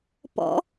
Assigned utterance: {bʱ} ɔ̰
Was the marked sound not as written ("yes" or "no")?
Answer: yes